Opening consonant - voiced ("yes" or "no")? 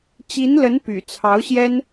no